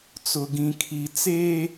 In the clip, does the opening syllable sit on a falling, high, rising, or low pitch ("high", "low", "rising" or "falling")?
low